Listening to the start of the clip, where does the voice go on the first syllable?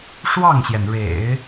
falling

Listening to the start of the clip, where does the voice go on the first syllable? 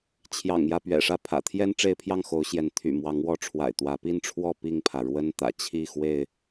low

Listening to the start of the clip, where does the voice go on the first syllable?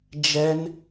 high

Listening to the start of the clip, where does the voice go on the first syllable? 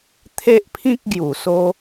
high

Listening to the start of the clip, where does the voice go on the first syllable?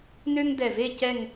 high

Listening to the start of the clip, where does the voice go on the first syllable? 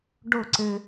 falling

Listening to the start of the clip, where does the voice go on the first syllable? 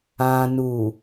low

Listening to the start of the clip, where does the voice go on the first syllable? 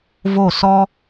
falling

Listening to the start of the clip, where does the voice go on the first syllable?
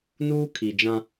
high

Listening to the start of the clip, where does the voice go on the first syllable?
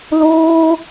high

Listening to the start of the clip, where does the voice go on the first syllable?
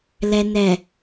low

